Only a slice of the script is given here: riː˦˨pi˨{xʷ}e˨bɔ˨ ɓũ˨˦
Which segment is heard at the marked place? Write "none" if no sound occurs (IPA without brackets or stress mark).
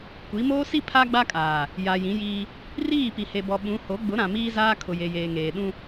h